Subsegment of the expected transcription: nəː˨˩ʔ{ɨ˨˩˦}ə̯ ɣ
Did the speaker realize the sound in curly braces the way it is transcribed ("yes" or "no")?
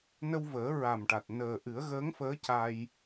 yes